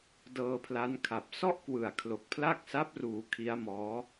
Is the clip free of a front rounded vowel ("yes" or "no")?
yes